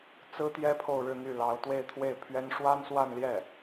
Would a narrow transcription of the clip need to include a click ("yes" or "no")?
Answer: no